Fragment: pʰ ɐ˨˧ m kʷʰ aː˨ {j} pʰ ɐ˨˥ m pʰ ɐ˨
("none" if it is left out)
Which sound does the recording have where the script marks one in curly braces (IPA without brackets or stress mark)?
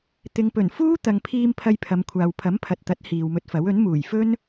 w